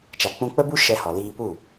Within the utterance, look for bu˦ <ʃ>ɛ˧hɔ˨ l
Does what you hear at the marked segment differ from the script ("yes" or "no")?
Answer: no